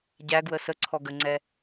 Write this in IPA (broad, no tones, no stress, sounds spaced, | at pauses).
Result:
ɟ æ ɡ w ə s ə ǀʰ ɔ ɡ ə ŋ͡ǀ ɛ